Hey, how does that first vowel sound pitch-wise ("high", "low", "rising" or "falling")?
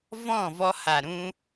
falling